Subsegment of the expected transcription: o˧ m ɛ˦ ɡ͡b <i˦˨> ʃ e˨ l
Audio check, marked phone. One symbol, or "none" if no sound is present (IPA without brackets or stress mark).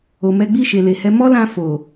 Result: i˦˨